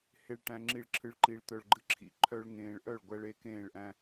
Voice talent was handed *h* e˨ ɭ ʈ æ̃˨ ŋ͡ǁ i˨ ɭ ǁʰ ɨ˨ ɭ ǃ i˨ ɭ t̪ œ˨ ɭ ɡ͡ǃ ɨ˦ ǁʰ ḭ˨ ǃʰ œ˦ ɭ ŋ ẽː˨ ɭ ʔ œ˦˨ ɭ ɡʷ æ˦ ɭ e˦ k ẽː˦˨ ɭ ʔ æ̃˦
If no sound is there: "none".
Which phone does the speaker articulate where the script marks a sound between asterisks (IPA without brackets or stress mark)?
h